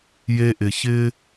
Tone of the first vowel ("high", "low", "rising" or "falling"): high